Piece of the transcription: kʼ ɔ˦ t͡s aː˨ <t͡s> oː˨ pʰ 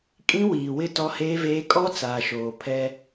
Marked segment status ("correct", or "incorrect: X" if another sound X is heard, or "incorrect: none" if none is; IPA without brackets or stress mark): incorrect: ʃ